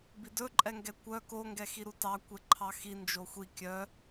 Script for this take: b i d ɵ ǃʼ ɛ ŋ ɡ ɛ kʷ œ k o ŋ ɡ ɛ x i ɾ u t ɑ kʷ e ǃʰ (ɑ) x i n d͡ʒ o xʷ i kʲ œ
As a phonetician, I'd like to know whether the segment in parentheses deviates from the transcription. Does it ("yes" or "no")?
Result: no